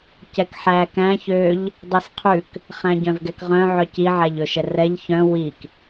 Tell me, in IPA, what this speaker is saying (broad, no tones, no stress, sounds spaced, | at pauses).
c ɛ k ħ æ k æ̃ ç ø ʎ | dˤ i s qʰ ʉ k | χ æ̃ ɟ œ̃ v ɡ ɛ k ʁ œ̃ ʕ œ c i ʕ æ ʎ ɵ ʃ ɛ r ɛ ʎ ç œ̃ w i k